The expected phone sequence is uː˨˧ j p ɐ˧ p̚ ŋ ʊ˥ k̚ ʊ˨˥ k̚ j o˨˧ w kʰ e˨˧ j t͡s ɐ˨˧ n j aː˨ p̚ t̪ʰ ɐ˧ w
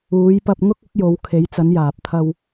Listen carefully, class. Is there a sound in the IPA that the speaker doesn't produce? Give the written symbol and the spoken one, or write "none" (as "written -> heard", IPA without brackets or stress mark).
none